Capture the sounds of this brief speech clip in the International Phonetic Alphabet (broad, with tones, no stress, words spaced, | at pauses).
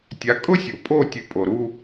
tʲa˩˥kʼʊ˥sʲo˩ pʼo˥˩tʲɨ˩˥ pʼo˩ɾu˧